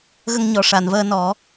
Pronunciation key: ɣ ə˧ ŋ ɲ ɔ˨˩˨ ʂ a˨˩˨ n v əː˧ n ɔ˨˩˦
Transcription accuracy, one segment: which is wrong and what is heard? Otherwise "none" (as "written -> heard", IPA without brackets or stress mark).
none